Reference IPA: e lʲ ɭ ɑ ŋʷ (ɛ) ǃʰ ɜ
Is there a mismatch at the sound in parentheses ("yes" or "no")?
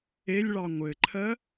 yes